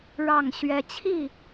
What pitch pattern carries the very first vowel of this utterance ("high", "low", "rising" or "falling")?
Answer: falling